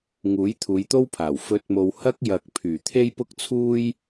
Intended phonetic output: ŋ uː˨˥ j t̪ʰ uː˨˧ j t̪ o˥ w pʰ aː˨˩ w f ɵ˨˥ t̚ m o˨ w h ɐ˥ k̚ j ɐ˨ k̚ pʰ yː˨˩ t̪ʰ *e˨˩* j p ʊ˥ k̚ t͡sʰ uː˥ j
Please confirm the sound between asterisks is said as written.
no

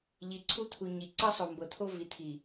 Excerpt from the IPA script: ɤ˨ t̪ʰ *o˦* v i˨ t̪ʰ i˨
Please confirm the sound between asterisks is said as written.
yes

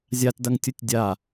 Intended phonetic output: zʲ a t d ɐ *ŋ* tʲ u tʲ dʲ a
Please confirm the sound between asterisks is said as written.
yes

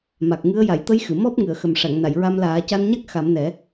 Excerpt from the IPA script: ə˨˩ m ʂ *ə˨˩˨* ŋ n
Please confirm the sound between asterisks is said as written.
no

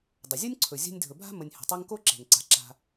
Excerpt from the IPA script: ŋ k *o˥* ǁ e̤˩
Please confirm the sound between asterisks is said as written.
yes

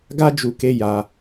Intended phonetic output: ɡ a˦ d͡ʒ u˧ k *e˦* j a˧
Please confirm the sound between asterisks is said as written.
yes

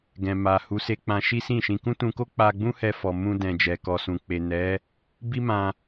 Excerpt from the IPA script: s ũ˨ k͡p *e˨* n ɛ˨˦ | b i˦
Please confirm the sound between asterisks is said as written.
yes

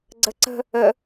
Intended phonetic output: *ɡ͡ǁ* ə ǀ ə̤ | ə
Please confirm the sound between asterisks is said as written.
no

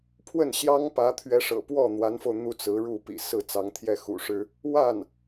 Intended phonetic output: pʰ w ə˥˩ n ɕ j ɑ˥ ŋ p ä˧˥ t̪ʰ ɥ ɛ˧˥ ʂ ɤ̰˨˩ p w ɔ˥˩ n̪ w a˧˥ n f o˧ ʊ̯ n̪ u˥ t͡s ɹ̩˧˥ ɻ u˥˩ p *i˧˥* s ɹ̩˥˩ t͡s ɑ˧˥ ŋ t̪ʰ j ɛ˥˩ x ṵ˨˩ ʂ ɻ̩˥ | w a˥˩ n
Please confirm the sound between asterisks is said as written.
no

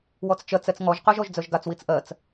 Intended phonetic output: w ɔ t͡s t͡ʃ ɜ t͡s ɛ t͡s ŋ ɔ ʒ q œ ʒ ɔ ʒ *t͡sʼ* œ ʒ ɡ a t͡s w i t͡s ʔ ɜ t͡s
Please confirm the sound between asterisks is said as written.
no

